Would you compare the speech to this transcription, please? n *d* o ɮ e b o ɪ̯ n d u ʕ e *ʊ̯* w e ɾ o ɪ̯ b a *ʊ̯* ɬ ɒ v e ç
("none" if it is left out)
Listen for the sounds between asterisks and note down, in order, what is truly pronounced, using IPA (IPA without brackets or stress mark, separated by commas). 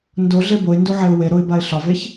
d, ʊ̯, ɪ̯